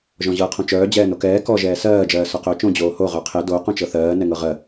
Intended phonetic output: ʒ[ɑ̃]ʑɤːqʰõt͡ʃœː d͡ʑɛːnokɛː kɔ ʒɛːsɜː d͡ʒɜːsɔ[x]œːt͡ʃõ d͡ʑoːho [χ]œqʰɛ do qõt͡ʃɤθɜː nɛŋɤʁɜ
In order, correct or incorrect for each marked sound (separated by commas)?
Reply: incorrect, incorrect, incorrect